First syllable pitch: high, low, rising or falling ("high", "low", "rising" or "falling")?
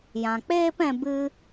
low